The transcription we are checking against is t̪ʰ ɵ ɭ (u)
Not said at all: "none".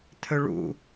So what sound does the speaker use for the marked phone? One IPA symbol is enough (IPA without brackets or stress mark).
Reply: ṵ